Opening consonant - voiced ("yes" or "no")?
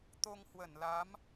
no